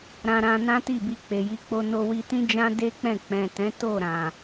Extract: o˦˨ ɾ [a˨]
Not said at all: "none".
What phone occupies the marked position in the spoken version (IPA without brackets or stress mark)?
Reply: ã˨